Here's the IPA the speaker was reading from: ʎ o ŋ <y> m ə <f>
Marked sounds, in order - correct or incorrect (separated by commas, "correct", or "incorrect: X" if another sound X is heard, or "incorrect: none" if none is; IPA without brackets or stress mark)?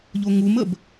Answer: incorrect: u, incorrect: b